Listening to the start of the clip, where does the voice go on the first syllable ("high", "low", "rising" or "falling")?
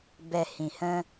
low